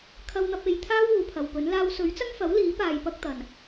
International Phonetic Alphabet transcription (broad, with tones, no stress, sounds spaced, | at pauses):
kʰ ɐ˧ w n̪ ɐ˧ p̚ e˨˧ j t̪ʰ aː˥ w uː˨˧ pʰ ɐ˨ w p ɵ˨˥ n l aː˥ w s ɵ˨˥ ɥ t͡s ɐ˥ ŋ f ɐ˨˥ w l iː˨˥ p aː˧ j p ɐ˥ k̚ t̪ ɐ˨ n